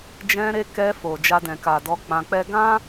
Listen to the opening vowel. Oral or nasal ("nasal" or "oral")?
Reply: nasal